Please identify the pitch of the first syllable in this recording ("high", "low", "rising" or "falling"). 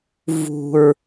low